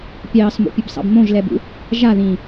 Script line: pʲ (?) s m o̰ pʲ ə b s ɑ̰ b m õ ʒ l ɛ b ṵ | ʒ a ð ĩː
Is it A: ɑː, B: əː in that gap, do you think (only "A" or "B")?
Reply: A